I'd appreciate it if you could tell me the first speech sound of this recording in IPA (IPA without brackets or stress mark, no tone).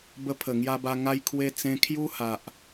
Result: b